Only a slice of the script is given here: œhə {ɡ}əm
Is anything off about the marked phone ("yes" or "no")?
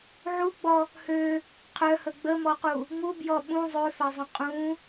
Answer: yes